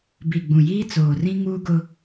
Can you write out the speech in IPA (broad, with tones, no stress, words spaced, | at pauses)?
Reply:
bi˨ɡ͡bũ˨ jiː˦t͡soː˨rĩ˦ ŋuː˦ɡʊ˦